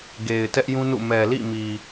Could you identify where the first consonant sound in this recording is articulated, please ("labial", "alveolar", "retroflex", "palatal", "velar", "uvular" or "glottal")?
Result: velar